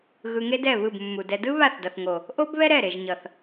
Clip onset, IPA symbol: ɣ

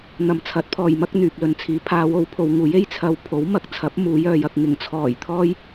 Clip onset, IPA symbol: n̪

